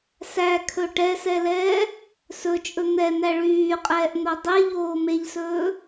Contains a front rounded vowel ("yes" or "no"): yes